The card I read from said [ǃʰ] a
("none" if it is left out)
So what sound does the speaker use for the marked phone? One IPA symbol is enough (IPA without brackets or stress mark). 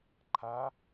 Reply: ǃʰ